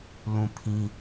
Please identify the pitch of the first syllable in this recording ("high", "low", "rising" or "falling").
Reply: falling